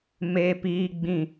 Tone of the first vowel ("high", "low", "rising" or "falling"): high